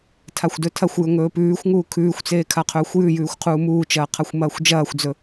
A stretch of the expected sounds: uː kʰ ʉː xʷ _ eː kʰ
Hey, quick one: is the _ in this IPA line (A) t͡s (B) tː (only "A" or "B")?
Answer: A